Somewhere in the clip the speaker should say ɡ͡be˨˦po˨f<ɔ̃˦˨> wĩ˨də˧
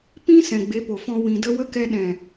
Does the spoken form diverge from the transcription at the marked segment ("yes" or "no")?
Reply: yes